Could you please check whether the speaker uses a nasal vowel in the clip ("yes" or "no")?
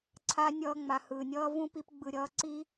yes